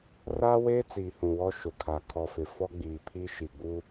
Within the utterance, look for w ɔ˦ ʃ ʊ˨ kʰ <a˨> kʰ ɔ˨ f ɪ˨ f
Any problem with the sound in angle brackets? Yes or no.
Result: no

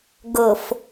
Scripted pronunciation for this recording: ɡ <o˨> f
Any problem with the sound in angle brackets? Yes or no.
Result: yes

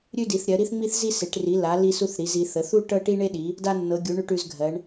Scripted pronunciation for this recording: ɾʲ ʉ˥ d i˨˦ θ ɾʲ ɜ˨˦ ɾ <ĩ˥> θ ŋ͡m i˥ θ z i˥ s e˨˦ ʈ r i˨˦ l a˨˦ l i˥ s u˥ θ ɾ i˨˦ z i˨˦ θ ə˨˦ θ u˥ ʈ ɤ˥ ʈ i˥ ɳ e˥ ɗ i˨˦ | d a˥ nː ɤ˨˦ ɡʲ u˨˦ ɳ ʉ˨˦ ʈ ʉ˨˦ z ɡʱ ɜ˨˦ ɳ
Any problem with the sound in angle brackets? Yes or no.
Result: yes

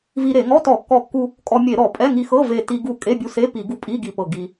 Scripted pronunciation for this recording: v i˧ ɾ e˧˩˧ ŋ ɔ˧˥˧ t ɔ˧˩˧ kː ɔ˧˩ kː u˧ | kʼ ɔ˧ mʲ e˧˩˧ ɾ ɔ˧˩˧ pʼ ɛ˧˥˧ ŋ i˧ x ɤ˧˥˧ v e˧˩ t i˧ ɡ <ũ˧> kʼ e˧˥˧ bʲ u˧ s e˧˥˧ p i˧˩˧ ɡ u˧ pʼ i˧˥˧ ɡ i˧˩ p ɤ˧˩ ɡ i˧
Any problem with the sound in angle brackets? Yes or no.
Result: yes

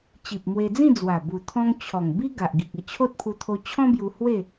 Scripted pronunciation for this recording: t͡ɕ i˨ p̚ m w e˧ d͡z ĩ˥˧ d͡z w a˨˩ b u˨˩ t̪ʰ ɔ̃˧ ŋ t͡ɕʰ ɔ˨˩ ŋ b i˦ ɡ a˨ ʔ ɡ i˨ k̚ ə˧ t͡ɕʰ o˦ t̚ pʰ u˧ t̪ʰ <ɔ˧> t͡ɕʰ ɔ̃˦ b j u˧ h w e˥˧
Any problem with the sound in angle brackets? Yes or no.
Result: yes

